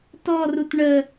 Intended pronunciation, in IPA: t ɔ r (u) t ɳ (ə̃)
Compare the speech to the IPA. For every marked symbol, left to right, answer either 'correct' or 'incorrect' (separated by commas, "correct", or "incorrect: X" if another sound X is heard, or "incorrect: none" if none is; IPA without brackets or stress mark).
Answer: correct, incorrect: ə